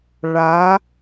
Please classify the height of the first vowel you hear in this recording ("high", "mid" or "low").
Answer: low